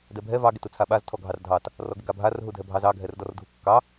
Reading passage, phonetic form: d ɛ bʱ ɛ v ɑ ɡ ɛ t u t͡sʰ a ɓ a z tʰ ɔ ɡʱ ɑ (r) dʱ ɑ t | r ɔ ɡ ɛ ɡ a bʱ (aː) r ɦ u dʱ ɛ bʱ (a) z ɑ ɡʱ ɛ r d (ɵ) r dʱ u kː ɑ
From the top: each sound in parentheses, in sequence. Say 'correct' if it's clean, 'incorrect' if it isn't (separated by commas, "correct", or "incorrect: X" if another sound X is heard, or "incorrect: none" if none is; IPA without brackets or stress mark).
correct, incorrect: a, incorrect: ɑ, incorrect: ɔ